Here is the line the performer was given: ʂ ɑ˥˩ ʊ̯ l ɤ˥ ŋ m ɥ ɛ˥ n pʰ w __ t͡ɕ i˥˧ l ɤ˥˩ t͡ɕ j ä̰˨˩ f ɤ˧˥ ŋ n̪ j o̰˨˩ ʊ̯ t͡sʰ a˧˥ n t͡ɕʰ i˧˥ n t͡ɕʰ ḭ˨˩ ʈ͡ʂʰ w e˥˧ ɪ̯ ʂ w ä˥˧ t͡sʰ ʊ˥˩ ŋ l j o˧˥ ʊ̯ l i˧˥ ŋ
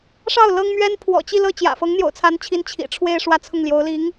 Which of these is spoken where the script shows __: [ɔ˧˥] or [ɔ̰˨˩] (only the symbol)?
ɔ̰˨˩